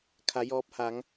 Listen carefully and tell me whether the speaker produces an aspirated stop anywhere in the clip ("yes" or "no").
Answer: yes